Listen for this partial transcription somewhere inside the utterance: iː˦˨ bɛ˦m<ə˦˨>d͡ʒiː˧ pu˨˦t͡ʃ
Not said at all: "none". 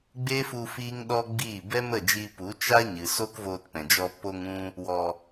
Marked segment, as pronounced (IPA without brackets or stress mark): ə˦˨